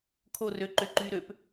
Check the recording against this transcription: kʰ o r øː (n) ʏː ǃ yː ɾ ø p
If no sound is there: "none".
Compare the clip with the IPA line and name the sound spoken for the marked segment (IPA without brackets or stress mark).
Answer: ǃ